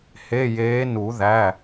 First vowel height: mid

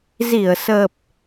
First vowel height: high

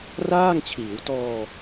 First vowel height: low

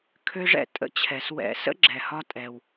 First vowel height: mid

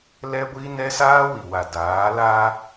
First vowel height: mid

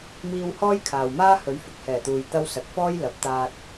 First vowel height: high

